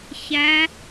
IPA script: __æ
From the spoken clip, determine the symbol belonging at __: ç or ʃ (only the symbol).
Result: ç